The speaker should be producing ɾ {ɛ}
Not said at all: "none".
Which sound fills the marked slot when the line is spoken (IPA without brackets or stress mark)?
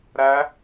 æ